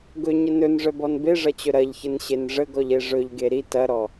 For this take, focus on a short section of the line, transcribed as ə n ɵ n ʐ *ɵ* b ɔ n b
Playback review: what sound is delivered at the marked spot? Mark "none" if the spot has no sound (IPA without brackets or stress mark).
œ